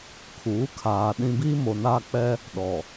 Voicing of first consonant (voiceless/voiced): voiceless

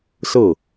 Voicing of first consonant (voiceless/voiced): voiceless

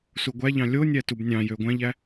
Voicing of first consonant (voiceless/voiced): voiceless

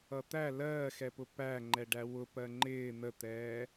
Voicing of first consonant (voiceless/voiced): voiceless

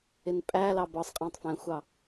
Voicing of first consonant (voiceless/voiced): voiced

